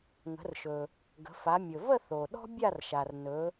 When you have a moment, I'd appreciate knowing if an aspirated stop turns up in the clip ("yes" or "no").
no